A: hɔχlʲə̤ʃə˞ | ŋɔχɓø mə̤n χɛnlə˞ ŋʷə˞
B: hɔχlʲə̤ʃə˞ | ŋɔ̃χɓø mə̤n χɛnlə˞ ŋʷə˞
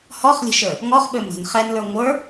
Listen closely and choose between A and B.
A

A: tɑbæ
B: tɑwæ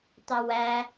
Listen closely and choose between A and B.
B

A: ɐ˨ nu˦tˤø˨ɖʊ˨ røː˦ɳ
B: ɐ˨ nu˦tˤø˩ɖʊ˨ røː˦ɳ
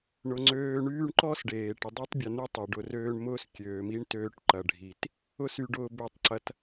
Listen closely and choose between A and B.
B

